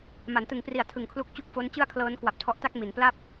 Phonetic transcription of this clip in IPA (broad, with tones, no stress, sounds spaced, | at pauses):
m a˩˦ n t ɯ˨˩ ŋ p r i˨˩ a̯ tʰ ɯ˨˩ ŋ kʰ l u˥˩ k̚ t͡ɕ u˥˩ k̚ f o˦˥ n t͡ɕ ɯ˥˩ a̯ kʰ l ɤː˦˥ n k w a˨˩ p̚ tʰ ɔ˦˥ ʔ t a˥˩ k̚ m i˩˦ n p l a˥˩ p̚